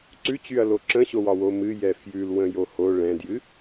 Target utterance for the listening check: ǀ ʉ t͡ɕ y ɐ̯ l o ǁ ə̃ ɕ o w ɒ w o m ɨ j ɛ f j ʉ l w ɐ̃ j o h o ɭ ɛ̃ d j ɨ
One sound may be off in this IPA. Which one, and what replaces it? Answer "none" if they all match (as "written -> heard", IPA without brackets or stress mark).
ɐ̃ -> ə̃